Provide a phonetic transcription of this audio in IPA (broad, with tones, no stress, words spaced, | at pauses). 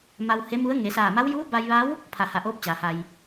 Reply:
ma˧whe˧˥mu˧˥ə̯ ŋe˩˧saː˧˩ma˧˥w juː˧˥ba˧jʋa˧˥w | pʰa˧˩ha˧˩ʔoː˧˥p̚ t͡ɕaː˩˧ha˧j